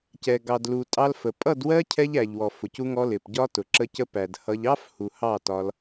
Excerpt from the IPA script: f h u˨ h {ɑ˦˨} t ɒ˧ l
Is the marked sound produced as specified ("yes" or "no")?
yes